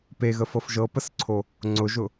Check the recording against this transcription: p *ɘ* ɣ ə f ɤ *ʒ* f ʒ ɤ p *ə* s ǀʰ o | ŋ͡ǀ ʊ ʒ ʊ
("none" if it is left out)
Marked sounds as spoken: e, none, ə

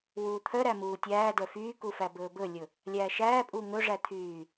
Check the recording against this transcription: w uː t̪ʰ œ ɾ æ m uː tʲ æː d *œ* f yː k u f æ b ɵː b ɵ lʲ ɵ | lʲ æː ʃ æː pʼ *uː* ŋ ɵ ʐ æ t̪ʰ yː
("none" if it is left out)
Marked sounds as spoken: œ, uː

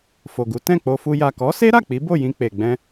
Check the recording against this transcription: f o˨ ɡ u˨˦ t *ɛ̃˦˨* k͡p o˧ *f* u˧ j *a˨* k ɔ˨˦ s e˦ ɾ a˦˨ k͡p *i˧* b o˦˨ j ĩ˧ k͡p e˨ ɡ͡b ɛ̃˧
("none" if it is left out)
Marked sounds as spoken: ɛ̃˦˨, f, a˨, i˨˦

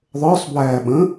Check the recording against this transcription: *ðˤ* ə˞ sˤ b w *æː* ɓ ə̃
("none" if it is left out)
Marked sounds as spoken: ðˤ, æː

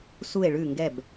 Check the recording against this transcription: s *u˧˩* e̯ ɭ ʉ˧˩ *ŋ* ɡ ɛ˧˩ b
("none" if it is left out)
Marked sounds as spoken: u˧˩, ŋ

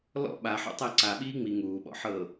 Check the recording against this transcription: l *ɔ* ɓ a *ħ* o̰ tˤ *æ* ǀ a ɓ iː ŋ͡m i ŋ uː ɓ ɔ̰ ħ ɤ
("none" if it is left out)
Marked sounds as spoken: ɔ̰, ħ, æ

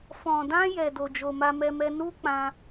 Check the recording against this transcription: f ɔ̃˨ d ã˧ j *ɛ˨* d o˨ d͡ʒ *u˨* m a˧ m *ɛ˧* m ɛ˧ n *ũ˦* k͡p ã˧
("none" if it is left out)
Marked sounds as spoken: ɛ˨, o˨, ɛ˧, u˦

